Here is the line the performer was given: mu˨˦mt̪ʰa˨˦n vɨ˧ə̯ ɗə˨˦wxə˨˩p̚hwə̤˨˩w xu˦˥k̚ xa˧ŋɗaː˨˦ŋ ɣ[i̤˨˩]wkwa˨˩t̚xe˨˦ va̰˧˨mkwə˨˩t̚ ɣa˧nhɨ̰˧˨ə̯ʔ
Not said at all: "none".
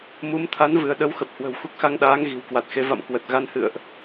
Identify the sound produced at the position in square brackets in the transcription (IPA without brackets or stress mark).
i̤˨˩